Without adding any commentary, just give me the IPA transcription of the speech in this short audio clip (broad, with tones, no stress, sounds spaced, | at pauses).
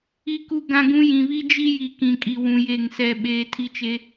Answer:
i˦ k u˦ ɡ ã˦ ɡ ũ˦ j ĩ˨ β i˦ d͡ʒ i˦ j i˨ k ĩ˨ kʼ i˨ w ũ˨ j e˦˨ ŋ s ɛ˦ ɓ eː˦ tʰ i˦ t͡ʃ e˦